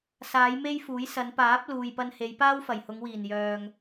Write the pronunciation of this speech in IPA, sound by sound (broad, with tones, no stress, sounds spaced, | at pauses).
s aː˨˧ j m e˥ j f uː˨˥ j s ɐ˨˧ n p aː˨˥ p̚ l uː˨ j p ɐ˧ n h e˨˧ j p aː˥ w f ɐ˨˩ j h ʊ˨˧ ŋ w iː˨˩ n j œː˨ ŋ